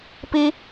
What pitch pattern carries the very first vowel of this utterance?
high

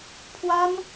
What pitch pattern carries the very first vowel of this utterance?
high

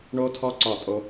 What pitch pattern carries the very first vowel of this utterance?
high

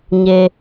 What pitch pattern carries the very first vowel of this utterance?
low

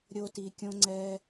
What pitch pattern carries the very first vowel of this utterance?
high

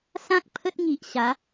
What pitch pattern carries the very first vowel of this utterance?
high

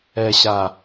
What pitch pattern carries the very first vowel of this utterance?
low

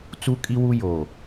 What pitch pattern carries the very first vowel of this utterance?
high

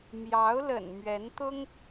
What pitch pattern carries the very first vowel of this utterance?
rising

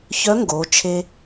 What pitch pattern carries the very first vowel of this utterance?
rising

